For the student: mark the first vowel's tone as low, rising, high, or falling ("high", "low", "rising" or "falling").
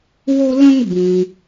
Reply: high